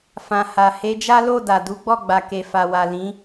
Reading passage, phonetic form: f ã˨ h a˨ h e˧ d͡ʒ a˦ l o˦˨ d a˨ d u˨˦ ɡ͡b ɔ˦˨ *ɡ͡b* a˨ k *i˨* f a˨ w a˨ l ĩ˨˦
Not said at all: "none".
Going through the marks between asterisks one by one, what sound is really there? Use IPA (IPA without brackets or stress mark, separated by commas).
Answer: ɡ͡b, e˨